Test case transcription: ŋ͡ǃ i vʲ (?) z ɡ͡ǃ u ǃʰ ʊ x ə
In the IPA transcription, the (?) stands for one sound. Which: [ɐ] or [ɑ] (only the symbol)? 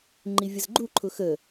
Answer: ɐ